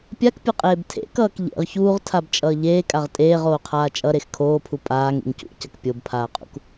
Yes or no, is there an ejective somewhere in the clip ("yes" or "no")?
yes